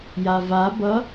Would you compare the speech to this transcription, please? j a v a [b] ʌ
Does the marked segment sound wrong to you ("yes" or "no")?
no